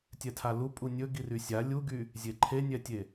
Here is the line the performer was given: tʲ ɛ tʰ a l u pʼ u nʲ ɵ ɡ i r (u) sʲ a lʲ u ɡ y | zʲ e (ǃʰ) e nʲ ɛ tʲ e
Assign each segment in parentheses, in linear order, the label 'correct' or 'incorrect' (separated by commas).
incorrect, correct